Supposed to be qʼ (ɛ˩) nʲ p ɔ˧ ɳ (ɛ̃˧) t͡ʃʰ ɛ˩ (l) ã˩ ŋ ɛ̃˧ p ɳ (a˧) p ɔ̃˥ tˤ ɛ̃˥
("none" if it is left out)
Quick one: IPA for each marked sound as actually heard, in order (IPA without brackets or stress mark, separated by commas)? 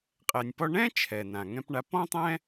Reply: ɛ˩, ɛ̃˥, n, a˧